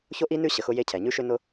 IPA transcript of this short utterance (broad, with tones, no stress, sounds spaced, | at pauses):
ç o˥ ʔ i˥ n ʉ˥ ɕ ə˩ x ʊ˥ j e˥ cʰ ɛ˩ ɲ ʉ˥ ʃ ʏ˥ n ʊ˥